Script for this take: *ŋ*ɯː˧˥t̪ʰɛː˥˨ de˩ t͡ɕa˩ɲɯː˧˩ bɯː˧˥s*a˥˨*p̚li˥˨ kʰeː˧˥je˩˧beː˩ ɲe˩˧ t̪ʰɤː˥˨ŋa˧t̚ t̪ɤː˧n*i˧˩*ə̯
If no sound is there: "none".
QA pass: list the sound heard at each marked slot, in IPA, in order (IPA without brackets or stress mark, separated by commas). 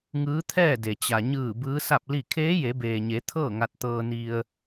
ŋ, a˥˨, i˧